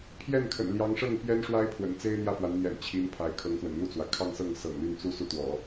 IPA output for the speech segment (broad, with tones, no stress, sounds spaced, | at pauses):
pʰ j ɛ˥˩ n kʰ ə̰˨˩ n l j ɑ˧˥ ŋ ʂ ɤ˥˩ ŋ p j ɛ˥ n ʂ w a˥ ɪ̯ pʰ w ə̰˨˩ n t͡s e˥ ɪ̯ n̪ j ä˥˩ f w a˧˥ n n̪ j ɛ̰˨˩ n t͡ɕʰ i˧˥ n pʰ a˧˥ ɪ̯ kʰ ɤ˧˥ ŋ x w ə̰˨˩ n n̪ u˥˩ t͡s w ä˩ kʰ ɑ˥˧ ŋ s ɤ˥˩ ŋ s ɤ̰˨˩ ŋ l y˥˩ n t͡s u˥ s u˥˩ t̪ w ɔ̰˨˩˦